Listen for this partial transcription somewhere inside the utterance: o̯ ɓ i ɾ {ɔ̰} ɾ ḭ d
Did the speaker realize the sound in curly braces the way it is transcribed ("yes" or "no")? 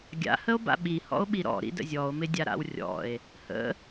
yes